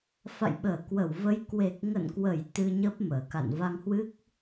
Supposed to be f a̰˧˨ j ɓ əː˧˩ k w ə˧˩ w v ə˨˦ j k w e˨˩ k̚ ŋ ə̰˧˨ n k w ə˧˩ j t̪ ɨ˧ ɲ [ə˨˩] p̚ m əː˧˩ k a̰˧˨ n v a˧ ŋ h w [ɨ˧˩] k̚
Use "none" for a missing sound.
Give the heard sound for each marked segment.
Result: ə˦˥, ɨ˦˥

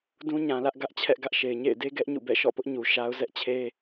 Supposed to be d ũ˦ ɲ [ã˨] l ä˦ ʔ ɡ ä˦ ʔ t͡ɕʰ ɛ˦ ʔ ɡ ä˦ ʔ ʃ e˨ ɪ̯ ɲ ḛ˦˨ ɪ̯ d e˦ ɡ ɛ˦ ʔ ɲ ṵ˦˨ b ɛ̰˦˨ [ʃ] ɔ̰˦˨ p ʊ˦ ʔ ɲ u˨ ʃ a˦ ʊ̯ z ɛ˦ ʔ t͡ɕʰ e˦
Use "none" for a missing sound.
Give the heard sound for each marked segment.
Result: ã˨, ʃ

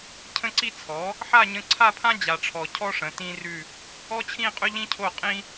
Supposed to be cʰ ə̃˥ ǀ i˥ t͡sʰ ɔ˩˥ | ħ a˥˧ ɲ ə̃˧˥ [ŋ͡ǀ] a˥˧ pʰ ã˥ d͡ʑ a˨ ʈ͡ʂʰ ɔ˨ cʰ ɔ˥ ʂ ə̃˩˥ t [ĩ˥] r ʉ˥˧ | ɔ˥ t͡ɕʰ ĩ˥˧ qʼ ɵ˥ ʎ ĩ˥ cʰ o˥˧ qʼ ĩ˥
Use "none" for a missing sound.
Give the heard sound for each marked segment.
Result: ǀʰ, ĩ˥

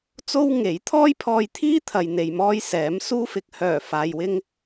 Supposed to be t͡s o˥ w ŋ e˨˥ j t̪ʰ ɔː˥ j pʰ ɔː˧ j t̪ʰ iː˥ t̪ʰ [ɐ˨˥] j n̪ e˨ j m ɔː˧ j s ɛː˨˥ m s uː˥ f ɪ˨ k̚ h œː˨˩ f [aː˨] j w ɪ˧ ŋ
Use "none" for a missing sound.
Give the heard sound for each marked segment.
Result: ɐ˨, aː˨

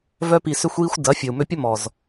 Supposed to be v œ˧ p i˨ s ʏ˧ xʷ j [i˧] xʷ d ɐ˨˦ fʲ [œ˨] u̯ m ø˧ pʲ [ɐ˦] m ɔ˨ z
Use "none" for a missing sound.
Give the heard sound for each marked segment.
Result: i˧, œ˨, ɐ˦

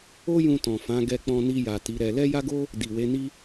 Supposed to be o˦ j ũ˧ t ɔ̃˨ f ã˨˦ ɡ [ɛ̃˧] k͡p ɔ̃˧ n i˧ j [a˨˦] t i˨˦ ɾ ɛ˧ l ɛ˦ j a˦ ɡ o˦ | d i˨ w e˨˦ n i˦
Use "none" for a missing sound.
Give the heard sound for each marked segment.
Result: ɛ˧, a˨

